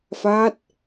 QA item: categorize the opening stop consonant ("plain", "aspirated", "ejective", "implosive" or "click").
plain